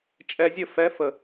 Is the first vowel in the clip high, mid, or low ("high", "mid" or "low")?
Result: mid